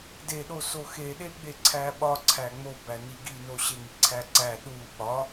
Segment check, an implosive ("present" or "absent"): present